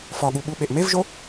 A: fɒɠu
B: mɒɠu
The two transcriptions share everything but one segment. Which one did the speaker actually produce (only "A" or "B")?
A